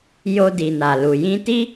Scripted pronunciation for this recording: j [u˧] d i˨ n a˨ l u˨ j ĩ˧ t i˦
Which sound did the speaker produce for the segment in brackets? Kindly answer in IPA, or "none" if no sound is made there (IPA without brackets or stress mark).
o˧